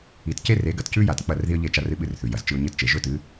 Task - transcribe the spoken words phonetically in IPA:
i˨ t c e˦ r e˨˦ ɡ ɐ˨ t c ʉ˦ j a˨ t k͡p ɐ˦˨ r ð i˦ ə̯ ʎ e˦˨ t͡ʃ a˦ r ɨ˦ ɓ ɨ˦ r θ ʉ˨ j ɐ˨ z t͡ʃ ɨ˦ ʊ̯ ɲ ɨ˦˨ t t͡ʃ e˨ ʒ ɵ˦ t ɨ˨˦

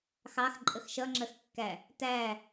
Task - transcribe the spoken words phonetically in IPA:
x ɑ x ǃʼ ə x ʃ ʌ ŋ͡ǁ ɜ x kː æ | t æ

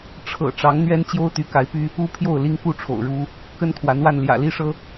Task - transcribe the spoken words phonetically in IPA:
ʈ͡ʂʰ ɤ̰˨˩ ʈ͡ʂ ɑ˧˥ ŋ n̪ ɥ ɛ˥ n t͡ɕ j o˥ ʊ̯ t̪ y˧˥ k a˧˥ ɪ̯ p y˥ | u˥ pʰ j o˥˩ ʊ̯ l i˥ ŋ k u˥ ʈ͡ʂʰ o̰˨˩ ʊ̯ ɻ u˥ | k ə˥ n kʰ w a˧˥ n w a˥˩ n l j ä̰˨˩ l i˥ ʂ ɤ˥

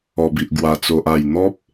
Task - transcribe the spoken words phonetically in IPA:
ɔ˨˩ b i˨ ʔ ɡ w a˨˩ t͡s o˨ ʔ a˨˩ j n̪ ɔ˦ p̚

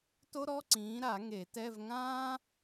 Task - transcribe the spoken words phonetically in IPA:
t o˥ ɾ ɔ˧˥˧ ǀ ĩː˨˥ ɾ a˨˩˦ ŋ e˨˩˦ t ɛ˧˥˧ v ŋ ãː˥

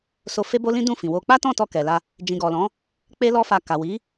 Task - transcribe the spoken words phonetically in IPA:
s o˧ f e˦ b o˦ l ĩ˦ d ũ˦˨ f ĩ˨ w o˧ k͡p a˦ t ɔ̃˦˨ t ɔ˧ k ɛ˨ l a˧ | d͡ʒ ĩ˨ ɡ ɔ˨ l ɔ̃˨˦ | k͡p e˦ l ɔ˦ f a˧ k a˨ w i˨˦

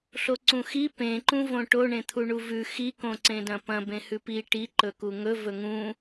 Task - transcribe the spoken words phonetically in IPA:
ɬ o ǀ ũ x i p ẽ ǃ ũ v õ ʈ o ɳ ẽ t̪ʰ u ɳ u v ʉ x i k õ ǀ ẽ d ɐ̃ p ɐ̃ b ẽ h ʉ p i ʈ i ǃ ɵ k u ŋ ɵ v ɵ ŋ ũ

